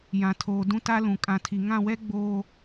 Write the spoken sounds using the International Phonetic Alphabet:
j ã˨ tʰ oː˨ d ũ˦ t a˦ l ũ˨ kʼ ã˨ tʰ i˨ ŋ ã˦˨ w ɛ˦ ɡ͡b oː˨

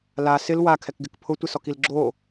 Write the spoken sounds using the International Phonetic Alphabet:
l a s ɪ l w a kʰ ɛ k ɡ ɪ k pʰ ʊ tʷ ɪ s ɔ k i l ɡ͡ǁ o

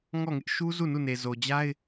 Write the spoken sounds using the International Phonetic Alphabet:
ŋ ɔ˦˨ ŋ ɪ˦ ʔ ʃ u˦ z u˦˨ n u˦˨ n e˨ z o˨ d͡ʑ a˦ ɪ̯

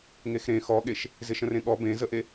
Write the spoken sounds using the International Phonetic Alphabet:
ŋ e x ɾ ẽ x ɔ ɠ e ʃ | z ɪ ʃ ə̃ r ẽ ɠ ɔ b ẽ z ə ʔ e

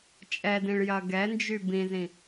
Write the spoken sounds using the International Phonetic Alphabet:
t͡ʃʼ ɛ d ĩ ɭ j ɐ ɡ ɛ n d͡ʒ y b ĩ z ĩ

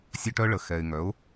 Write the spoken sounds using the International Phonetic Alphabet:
sʲ œ˧ ʈ œ˧ ɭ ə˨ x ɛ˨ ɪ̯ ŋ œ˨˦ ʊ̯

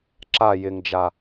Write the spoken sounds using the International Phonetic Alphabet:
ǁ a j ɪ ŋ d͡ʒ a

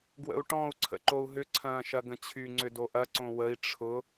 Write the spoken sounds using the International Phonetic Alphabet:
ɡ w ə̰ u̯ ʈ ɔ̃ u̯ ǀʰ ə̰ ǃ o u̯ ɦ ʏ ǀʰ ɐ̃ː ʃ ɐ ɡ ə̃ t͡ɕʰ y ŋ͡ǀ ʏ d o ʔ ɐ ǀ õ w ə i̯ ʈ͡ʂʰ ʊ

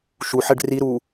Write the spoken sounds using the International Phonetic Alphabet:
ʃ u ħ ɛ ɖ r i ɾ u

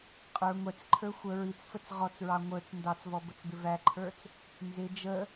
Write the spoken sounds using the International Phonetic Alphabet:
qʼ ə˞ ŋʷ ɛ t͡s ǃʰ ə˞ xʷ ə ɹ i t͡s f ə t͡s ʁ ɔ t͡s ɹ ɑ ŋʷ ə˞ t͡s n d ɑ t͡s v ɔ b ə t͡s b ɪ v æ ǃʰ ə˞ t͡s | n z ɪ d͡ʒ ə

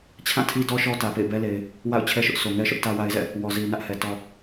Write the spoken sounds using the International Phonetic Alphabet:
t͡ɕʰ ã˦˨ tʰ i˦ d ɔ˦ ʃ ɔ˦ t ä˨ p ḛ˦˨ ɪ̯ b ɛ˦ l e˨ ɪ̯ | w a̰˦˨ ʊ̯ t͡ɕʰ ɛ˦ ʃ ʊ˦ ʔ s o˨ ŋ ɛ˦ ʃ ʊ˦ ʔ t ä˦ w a˦ ɪ̯ z ɛ̰˦˨ | w ɔ˨ z i˨ n ä˦ ʔ h ɛ˨ t ɔ˨

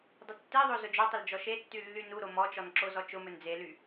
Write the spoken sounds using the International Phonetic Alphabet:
dˤ ʊ tː e ðˤ o z ʊ d͡ʒ o tˤ ʊ l d͡ʒ ɔ ʃ e tː y lː y n u ɾ o m ɔ t͡ʃ ɔ n ǁ o z ɔ t͡ʃ ʊ m ɵ n d͡z e l y

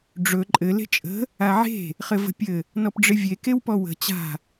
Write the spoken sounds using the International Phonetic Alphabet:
ɖ͡ʐ ɵ ǃʼ ɘ l e̤ t͡ʃʼ ə̤ | a ʕ e̤ | χ ɘ v ə̤ pʲ ɘ | n ɔ p ɖ͡ʐ ɪ vʲ e k e w p ɔ w ə̤ t͡ɕ a̤

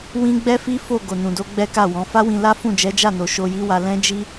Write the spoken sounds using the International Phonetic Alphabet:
w ĩ˦ ɡ͡b ɛ˦ f i˦ f o˦˨ ɡ o˨ n ũ˨ d o˨˦ ɡ͡b ɛ˦ k a˦˨ w ɔ̃˨˦ f a˦ w ĩ˧ l a˦ f ũ˦˨ d͡ʒ ɛ˨˦ d͡ʒ a˦˨ n o˨ ʃ o˧ j i˦ w a˧ l ɛ̃˦ d͡ʒ i˦

